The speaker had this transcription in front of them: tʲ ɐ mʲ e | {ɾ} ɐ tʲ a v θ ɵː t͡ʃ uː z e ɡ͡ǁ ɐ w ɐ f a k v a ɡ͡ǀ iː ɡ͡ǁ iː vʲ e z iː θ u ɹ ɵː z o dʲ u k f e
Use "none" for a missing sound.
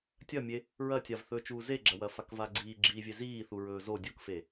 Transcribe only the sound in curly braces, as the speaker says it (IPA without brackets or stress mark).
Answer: ɹ